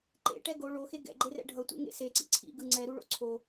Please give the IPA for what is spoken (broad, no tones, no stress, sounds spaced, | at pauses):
ǃ ḛ ʈ ɛ ɡ o ɭ o x e ɡ ɛ̰ ɡ͡ǃ e r ɛ̰ ɖʱ ʌ tʷ ḛ ŋ ḛ s e ǀ ḭ ǀʰ ḭ ɡ ɯ ŋ͡ǀ ɛ ɾ u ɭ o̰ ǀʰ o